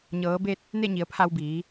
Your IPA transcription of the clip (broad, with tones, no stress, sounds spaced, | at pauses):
ɲ ɤː˩˧ b e˧ t̚ | n e˥˨ ɲ i˩˧ ə̯ pʰ a˧ w b iː˩˧